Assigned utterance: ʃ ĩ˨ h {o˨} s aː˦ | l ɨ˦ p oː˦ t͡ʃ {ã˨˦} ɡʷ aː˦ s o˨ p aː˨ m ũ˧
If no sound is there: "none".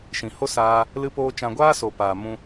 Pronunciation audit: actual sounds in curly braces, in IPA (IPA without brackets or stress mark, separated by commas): o˦, ã˧